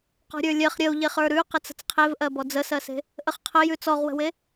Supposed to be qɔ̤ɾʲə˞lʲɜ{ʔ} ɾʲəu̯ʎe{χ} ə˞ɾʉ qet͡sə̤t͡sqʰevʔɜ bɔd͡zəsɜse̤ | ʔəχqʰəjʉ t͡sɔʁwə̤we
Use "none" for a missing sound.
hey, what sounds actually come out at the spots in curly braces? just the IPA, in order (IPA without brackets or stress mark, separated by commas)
χ, χ